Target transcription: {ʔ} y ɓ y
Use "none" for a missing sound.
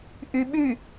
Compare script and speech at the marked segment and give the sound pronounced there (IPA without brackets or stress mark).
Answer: ʔ